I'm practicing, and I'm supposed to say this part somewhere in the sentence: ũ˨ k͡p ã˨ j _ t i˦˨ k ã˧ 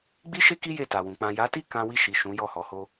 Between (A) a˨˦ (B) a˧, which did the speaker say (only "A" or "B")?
A